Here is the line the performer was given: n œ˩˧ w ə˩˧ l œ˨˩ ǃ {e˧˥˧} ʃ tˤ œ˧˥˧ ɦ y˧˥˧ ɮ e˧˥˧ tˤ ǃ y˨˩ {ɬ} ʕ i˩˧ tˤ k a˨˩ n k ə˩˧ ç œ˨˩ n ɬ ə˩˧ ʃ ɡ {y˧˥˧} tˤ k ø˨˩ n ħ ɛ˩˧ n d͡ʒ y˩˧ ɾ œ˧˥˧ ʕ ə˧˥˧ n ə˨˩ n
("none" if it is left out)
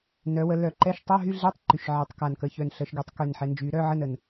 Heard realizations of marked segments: ɛ˧˥˧, ʃ, y˩˧

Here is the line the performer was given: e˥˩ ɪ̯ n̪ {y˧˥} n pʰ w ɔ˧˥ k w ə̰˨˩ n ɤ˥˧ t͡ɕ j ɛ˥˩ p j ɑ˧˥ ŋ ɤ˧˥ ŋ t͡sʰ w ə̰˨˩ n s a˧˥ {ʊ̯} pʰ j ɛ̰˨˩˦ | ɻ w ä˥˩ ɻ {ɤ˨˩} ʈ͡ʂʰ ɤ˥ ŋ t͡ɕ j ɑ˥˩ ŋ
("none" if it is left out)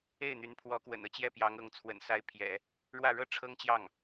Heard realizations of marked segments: y˧˥, ɪ̯, ɤ˥

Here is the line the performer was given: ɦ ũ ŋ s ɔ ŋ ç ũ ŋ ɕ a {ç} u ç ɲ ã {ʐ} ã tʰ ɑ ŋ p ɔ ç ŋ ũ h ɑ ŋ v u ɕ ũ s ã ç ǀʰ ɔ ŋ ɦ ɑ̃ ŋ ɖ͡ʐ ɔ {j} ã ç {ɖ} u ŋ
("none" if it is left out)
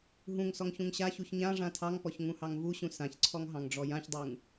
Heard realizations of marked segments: ç, ʐ, j, dˤ

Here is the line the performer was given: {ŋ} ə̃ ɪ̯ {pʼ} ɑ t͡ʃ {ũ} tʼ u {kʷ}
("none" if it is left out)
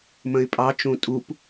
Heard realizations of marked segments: m, pʼ, ũ, p

